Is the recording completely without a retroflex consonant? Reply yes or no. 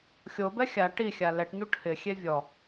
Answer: no